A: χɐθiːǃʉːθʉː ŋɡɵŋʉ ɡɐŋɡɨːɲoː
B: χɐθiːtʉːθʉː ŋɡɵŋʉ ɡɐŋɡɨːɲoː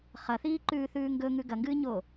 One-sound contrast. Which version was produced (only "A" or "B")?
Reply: A